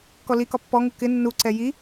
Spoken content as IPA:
kɔlikɒ pːɔŋu kɪ nːuǀɛ ji

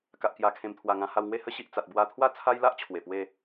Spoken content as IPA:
ka˨ʔkja˨˩ kʰẽ˨˩mt̪ʰwa˨˩ ŋã˧ha˧wŋwe˥˧ hə˦ɕi˨ʔ t͡sa˨t̚bwa˧t̪ʰwa˥˧ t͡sʰa˦jla˦ʔ t͡ɕʰwe˨˩pwe˥˧

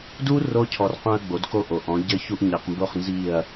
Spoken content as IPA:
du˦ ro˦cʰɔ˨rqũ˧ɐ̯ ɡ͡bo˨˦dko˦ʔo˨ʔɔ̃˨˦ ɟɘ˧çu˧ʔ ɲi˨qmbo˦˨χnzi˦˨ɐ̯

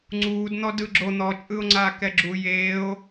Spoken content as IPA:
ŋ͡ǀuːd n̪ɔdɯɡ͡ǁo n̪ɔt͡ʃʼɯo̯ŋ͡ǀaː kɛɡ͡ǁu jeːo̯

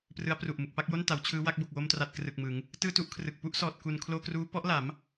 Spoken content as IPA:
prɯ˦˥a̯pru˨˩ʔmɯ˨˩k̚ pa˥˩k̚jo˥˩n ta˩˦wt͡ɕʰɯː˦˥wa˦˥k̚ bo˨˩k̚wo˧mtra˨˩t̚ krɯ˨˩k̚mɯ˩˦ŋ | tɯː˥˩tu˥˩ʔkʰrɯ˨˩k̚ pu˦˥ʔsɔː˨˩t̚ku˨˩n kʰloː˧kruː˦˥ pɔ˦˥ʔla˩˦m

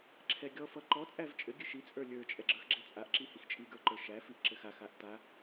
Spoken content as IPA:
ǁʰɛɡʲɔ fʌǃɔ t͡sʼævt͡ʃʼɘ ɡʲɘʃi t͡sʼə˞lʲə˞ t͡ʃʼɛɡ͡ǁə˞xɡ͡ǁɛt͡sʼaʔ ǁihixt͡ʃʼi ɡə˞ǃə˞ʃæ fiʔǁɘxa xaʔta

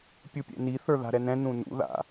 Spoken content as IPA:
pʲupʲɛ̰ni θə˞ða̤ɾɛnɛ̃ nũnṵ ða̰

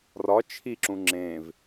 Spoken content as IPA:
rɒ t͡ʃʰiǁũ ŋ͡ǁẽv

